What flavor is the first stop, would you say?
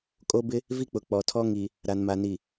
ejective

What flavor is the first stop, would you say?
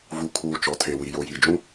aspirated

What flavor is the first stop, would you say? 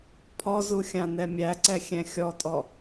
aspirated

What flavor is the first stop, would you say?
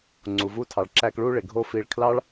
click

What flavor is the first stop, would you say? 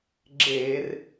click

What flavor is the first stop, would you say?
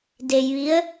plain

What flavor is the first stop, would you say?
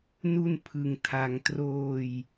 aspirated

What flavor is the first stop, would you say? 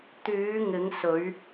plain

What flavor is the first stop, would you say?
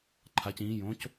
click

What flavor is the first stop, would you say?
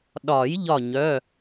implosive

